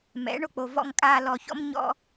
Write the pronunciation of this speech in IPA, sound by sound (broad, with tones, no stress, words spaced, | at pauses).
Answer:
mɛ̰˨˦ɳo˧k͡po˨ vɔ̰˨ŋkʼaː˨ lɔ˨çɔ̰˧m ɲɔ̰˧